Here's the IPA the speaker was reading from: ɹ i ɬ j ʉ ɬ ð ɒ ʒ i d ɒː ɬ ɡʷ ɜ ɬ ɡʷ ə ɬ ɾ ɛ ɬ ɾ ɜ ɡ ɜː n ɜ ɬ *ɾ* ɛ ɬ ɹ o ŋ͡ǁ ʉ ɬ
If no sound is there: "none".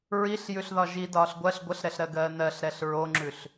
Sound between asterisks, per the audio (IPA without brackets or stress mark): ɾ